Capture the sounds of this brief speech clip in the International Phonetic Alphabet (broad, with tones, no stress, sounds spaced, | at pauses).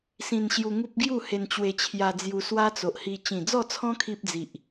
s ĩ˧ n ɕ j u˧ ŋ u˦ p̚ ɡ j u˥˧ h e˧ n t͡ɕ w e˧ t͡ɕʰ j a˧ d͡z j u˧ s w a˦ t͡s o˨ ʔ h i˧ t͡ɕ ĩ˨˩ d͡z ɔ˥˧ t͡sʰ ɔ̃˦ kʰ i˦ p̚ d͡z i˨ ʔ